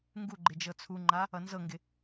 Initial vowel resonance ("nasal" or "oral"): oral